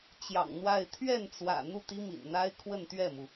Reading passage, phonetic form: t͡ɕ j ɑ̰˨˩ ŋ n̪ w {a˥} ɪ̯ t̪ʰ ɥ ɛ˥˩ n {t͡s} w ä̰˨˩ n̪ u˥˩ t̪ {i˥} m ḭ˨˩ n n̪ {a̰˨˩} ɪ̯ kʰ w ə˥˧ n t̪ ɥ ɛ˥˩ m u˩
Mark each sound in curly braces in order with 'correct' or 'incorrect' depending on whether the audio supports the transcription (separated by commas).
incorrect, correct, correct, incorrect